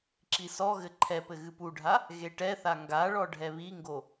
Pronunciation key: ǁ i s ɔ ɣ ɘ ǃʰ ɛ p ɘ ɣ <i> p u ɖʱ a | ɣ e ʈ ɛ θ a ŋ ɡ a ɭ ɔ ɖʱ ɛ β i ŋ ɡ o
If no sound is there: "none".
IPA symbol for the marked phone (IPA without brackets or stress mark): ɨ